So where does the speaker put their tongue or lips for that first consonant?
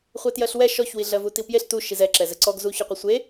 uvula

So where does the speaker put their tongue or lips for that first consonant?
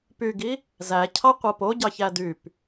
lips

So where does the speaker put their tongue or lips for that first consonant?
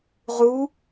uvula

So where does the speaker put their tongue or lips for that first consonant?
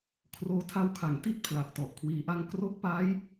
velum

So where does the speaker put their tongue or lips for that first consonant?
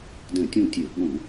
tongue tip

